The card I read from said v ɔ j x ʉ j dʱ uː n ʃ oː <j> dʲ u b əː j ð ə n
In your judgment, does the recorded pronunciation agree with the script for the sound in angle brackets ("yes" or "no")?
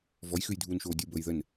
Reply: no